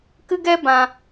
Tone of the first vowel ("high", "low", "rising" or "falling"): high